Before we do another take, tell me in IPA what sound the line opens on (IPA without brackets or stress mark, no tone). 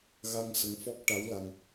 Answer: ɣ